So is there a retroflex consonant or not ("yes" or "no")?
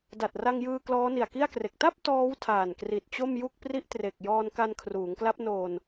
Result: no